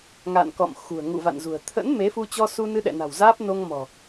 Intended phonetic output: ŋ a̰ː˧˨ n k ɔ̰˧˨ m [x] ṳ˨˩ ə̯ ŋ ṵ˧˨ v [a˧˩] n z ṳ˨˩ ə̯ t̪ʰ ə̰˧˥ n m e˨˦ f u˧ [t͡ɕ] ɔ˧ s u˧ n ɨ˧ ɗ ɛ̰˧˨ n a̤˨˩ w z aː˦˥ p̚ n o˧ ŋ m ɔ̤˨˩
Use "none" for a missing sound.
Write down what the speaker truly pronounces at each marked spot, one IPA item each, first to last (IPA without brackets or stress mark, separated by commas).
x, a̰˧˨, t͡ɕ